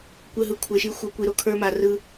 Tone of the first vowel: falling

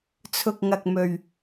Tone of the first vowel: low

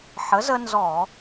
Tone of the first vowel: rising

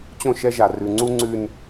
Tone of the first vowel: falling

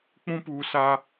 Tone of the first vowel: high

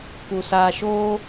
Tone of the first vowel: low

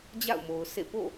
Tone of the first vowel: falling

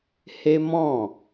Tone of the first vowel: high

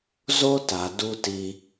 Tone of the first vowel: high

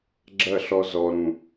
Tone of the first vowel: falling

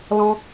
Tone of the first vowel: high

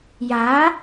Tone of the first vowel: rising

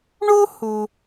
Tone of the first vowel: high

